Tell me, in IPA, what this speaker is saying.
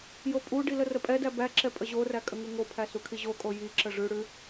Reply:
j o pʼ u ɖ i l ə r ə pʼ ɛ d æ b æ ǁ ɛ pʼ ə ʑ o r æ kʼ ə ŋ u ŋ o pʰ æ s u kʰ i ʑ o kʼ o j i ǁ ə ʐ ʉ ɽ ʉ

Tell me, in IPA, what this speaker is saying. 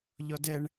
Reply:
ʎ ɔ d ɛ ɳ

